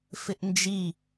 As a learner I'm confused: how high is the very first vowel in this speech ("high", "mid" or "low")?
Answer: high